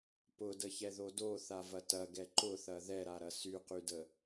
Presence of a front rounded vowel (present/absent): present